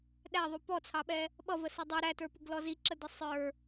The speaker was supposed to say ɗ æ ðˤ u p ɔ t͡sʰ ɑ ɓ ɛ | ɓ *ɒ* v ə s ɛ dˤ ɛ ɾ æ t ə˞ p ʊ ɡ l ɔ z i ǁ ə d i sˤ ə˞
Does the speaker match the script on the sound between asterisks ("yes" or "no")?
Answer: no